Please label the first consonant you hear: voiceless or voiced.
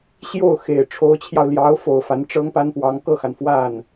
voiceless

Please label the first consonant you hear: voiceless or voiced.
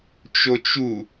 voiceless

